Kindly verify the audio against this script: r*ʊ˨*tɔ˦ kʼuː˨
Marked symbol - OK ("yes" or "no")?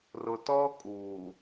yes